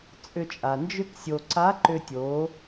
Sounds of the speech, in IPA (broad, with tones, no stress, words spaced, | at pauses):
t͡sʼʏ˧t͡ʃʼa˩nd͡ʒʏ˥ksʲo˧ ǀa˧˥ǃʏ˧tʲo˩˧